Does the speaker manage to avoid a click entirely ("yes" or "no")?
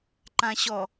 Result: no